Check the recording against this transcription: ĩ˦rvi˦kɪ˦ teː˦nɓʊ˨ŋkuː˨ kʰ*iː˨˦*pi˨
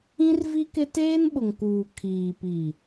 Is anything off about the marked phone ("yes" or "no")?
yes